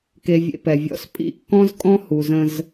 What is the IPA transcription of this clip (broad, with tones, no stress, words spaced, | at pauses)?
ke˨vʲḛ˨pɛ˩vʲɔ̰˦s pʼḭ˦kːɔ̃˥z kʼɔ̃˥hu˨zə̃˦z